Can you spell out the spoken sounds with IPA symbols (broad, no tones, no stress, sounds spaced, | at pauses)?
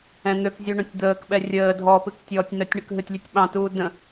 ɛ̃ n̪ ø k zʲ u ɳ ũ tʲ d̪ əː k ɓ ɛ rʲ əː dʱ ɔ p ɨ k tʲ ɔː tʲ n ə tʲ ɳ ə k ɦ ɨ tʲ lʲ ɨ tʲ ɓ ɑ̃ t uː d ə̃